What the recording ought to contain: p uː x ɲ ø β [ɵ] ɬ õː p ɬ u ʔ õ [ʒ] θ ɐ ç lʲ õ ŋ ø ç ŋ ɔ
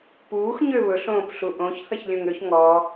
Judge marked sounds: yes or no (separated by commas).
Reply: yes, no